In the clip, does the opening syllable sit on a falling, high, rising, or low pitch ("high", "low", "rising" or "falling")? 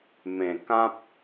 low